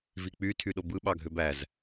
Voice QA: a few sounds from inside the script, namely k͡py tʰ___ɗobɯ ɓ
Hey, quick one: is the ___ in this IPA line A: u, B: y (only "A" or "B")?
B